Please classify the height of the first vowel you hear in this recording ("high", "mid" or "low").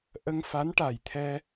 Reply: mid